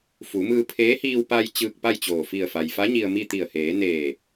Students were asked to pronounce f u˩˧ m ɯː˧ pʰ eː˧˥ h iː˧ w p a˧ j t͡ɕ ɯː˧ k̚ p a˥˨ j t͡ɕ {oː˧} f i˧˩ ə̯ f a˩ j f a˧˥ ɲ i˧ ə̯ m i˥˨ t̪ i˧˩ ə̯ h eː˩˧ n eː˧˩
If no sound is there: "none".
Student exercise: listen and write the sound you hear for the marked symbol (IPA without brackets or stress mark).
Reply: oː˧˩